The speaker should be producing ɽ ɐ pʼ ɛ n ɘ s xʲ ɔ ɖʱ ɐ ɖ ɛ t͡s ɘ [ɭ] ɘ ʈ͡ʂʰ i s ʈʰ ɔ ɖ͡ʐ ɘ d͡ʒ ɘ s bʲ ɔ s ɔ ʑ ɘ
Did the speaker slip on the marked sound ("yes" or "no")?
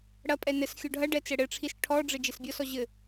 yes